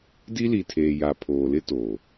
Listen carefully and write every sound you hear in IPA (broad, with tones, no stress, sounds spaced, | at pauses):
d i˦ l i˨ tʰ eː˨ j a˨ pʰ oː˨ l ɪ˦ t oː˨